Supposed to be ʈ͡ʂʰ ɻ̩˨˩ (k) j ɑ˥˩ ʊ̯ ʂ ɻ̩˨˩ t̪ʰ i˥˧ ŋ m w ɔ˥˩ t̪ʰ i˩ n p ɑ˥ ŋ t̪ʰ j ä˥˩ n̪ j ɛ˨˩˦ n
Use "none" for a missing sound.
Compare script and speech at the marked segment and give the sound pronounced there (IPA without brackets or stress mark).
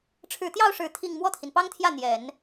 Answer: t̪